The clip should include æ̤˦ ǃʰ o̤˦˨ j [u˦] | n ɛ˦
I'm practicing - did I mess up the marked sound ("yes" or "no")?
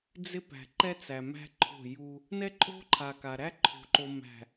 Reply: no